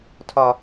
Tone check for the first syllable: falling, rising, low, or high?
high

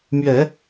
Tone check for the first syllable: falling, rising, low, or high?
low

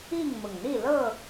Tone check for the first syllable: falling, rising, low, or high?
falling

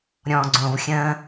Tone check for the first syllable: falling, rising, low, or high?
low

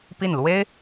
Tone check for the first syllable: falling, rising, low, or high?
falling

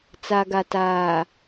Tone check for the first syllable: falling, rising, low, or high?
low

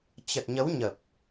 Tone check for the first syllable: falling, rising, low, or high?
low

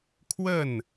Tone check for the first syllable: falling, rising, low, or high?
falling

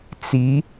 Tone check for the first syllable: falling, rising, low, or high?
rising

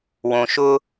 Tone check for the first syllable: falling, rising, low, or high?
low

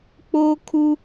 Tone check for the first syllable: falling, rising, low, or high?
high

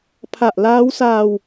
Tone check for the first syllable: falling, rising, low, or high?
low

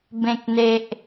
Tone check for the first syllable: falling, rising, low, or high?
low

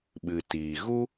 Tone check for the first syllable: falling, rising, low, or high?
low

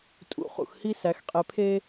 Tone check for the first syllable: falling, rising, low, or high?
low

